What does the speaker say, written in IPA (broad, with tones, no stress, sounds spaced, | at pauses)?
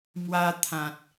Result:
m w a˧ t̪ʰ ã˨ t̚